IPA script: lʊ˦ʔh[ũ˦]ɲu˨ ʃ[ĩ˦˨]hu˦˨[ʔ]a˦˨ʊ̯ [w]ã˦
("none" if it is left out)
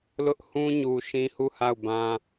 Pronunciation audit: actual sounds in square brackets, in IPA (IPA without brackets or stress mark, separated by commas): ũ˦, ĩ˦, h, b